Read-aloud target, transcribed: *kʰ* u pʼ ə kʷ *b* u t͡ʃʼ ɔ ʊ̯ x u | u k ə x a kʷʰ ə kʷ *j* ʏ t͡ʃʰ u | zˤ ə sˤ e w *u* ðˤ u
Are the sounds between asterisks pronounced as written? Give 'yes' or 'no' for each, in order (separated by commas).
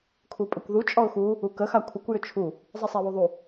yes, no, yes, yes